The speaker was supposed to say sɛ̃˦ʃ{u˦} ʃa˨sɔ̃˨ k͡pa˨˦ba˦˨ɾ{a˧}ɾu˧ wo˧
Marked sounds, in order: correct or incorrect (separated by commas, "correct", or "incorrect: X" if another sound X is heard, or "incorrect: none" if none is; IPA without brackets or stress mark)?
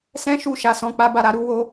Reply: incorrect: u˧, incorrect: a˨